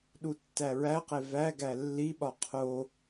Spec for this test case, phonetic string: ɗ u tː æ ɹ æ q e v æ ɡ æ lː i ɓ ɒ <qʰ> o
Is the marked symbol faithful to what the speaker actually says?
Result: yes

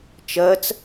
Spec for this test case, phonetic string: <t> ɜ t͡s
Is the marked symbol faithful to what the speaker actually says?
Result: no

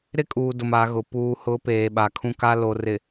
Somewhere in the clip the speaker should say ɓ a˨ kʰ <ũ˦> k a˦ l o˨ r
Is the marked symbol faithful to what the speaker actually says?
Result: yes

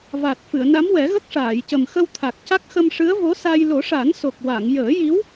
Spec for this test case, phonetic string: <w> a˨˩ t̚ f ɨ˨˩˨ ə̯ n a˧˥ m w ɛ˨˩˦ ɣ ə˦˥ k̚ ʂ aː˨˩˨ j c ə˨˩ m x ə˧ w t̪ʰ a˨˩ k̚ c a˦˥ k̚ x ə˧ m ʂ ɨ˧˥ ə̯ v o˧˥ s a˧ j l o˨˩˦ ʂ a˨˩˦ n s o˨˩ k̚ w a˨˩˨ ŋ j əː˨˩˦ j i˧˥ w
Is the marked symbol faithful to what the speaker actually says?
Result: no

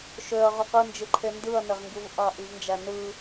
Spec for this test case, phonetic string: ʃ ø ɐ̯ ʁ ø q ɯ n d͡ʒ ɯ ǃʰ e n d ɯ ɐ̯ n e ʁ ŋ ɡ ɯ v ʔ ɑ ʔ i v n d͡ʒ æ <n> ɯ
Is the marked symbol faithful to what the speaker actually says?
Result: yes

